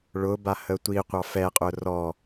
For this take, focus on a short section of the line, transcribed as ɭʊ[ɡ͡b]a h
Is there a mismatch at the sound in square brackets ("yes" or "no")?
yes